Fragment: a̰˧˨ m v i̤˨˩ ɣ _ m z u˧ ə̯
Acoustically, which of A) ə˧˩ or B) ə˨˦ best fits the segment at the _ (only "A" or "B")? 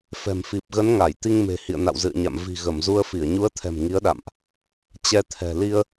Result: A